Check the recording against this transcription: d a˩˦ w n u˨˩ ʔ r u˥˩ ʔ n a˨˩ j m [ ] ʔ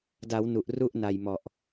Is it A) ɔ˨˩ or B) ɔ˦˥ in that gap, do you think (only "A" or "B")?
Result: A